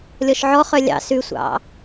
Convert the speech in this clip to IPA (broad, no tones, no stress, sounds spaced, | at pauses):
lʲ ɔ ʃ ʕ ɔ χ œ lʲ ɑ̰ s ʉ sʷ ɑ̰